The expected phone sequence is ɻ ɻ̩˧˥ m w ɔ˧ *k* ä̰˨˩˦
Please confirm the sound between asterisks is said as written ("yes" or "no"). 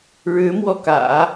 yes